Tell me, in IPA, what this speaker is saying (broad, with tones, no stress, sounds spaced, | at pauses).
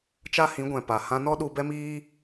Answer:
t͡ʃ a˦ h ĩ˨˦ ɡʷ ɛ̃˨ p a˨ h ã˧ n ɔ˦ ɗ u˧ b ɛ˦ m iː˦